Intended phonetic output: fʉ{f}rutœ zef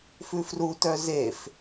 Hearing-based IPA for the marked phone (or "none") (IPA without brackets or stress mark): f